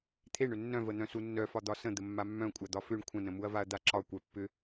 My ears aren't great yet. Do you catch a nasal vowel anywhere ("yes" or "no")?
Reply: yes